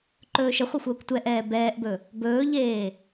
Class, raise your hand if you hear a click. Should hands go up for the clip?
yes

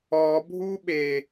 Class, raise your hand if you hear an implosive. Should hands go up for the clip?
yes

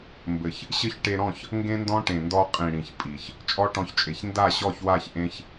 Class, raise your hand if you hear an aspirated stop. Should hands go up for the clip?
no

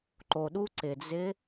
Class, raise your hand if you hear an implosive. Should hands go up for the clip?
yes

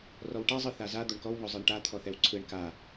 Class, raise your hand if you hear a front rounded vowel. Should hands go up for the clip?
no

